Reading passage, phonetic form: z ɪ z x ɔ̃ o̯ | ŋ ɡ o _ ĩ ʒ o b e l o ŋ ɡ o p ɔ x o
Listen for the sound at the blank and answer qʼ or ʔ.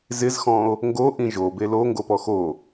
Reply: ʔ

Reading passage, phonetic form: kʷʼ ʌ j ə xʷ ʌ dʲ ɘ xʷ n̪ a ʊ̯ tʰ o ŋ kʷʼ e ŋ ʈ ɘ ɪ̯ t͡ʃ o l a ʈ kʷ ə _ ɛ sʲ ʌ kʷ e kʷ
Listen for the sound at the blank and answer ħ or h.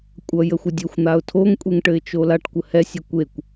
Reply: h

